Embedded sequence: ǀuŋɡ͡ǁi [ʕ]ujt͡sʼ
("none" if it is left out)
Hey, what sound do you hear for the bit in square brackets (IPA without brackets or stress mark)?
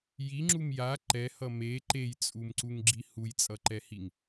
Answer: h